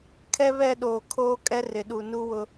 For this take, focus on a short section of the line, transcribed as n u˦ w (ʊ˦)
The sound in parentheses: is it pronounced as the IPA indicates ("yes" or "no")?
yes